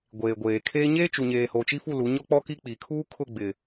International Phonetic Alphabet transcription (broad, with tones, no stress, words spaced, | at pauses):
ɡʷeː˨ɡʷeː˨kʰeː˦ ɲeː˦t͡ʃu˨ɲeː˨ho˨ t͡ʃi˦fu˦˨lu˨˦ ɲɔ˦k͡pɔ˦ki˦ k͡pi˨kʰuː˦kʰʊ˦˨ ɡ͡bɪ˨